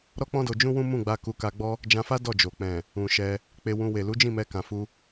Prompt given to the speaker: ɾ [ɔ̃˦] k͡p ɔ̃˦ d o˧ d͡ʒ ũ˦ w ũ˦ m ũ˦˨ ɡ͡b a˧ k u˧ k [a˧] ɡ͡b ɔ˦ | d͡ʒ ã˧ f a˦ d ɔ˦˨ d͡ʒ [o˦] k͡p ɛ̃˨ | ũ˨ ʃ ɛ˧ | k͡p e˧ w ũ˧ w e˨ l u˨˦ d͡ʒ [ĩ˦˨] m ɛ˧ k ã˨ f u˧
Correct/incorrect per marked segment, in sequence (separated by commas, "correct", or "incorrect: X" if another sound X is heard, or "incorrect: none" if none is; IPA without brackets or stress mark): incorrect: ɔ˦, correct, incorrect: o˨, correct